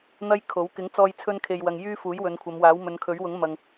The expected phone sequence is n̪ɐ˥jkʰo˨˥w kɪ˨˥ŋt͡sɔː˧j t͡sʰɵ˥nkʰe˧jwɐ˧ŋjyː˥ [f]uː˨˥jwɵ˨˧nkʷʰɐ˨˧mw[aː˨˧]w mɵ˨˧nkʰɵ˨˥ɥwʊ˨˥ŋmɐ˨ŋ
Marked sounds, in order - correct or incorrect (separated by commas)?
correct, incorrect